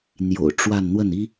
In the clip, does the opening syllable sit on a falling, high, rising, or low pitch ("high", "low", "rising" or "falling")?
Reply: low